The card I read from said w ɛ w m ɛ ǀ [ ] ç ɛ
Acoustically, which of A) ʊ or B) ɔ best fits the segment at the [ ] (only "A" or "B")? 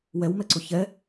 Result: A